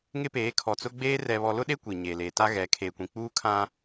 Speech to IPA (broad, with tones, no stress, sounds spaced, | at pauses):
ŋ ɪ˦ p eː˨˦ kʰ ɔ˨ t͡s ʊ˦ ɡ͡b eː˦ r ɛ˨ β ɔ˨ l ʊ˦ ɗ e˦ kʷ i˨ ɲ eː˨ l eː˨ t a˦ ɣ ɛ˨˦ kʰ eː˨ kʷ ĩ˨ k͡p uː˦ kʰ ã˦